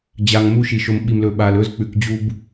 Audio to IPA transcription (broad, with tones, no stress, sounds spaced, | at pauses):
d͡ʑ a˨ ŋ m u˦ ʃ i˨ ʃ o˨ m ɓ i˨ m l ɵ˨ ɓ a˨ l ɵ˦ z k͡p ʉ˨ k d͡ʑ u˦ b